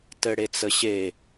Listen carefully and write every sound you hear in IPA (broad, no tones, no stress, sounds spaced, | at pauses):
t ɘ ɽ e t͡s ə ɕ e